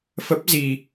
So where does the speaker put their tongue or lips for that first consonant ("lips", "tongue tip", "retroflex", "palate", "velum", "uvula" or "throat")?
lips